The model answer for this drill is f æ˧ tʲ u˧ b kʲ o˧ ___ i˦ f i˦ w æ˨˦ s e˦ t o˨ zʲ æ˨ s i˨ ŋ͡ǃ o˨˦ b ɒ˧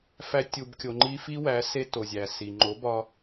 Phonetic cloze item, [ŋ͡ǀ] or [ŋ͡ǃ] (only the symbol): ŋ͡ǃ